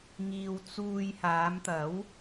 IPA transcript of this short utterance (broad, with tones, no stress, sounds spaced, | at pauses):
ŋ iː˨ w t͡s uː˧ j h aː˨˧ m t̪ ɐ˨˥ w